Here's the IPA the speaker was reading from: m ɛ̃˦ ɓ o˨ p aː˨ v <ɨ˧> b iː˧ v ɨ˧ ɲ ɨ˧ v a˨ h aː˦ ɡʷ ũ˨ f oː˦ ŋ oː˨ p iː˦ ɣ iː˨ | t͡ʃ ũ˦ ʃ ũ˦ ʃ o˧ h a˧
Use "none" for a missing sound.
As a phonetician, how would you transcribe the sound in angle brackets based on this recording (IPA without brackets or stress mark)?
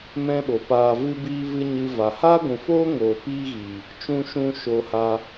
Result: ɨ˧